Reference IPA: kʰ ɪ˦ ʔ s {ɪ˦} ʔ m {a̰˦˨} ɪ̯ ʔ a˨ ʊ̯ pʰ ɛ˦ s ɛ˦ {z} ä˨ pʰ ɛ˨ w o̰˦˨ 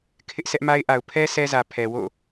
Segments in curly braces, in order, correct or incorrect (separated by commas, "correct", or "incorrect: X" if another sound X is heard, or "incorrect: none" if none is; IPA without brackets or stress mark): incorrect: ɛ˦, incorrect: a˦, correct